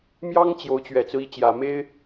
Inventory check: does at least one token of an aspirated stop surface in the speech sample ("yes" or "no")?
no